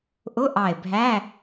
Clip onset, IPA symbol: ʔ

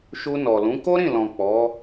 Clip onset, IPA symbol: ʃ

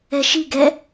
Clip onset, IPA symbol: ɛ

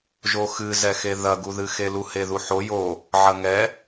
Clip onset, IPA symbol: ʒ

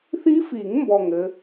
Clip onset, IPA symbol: θ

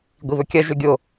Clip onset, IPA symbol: ɡʷ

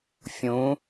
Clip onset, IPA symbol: fʲ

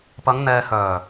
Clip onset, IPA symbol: p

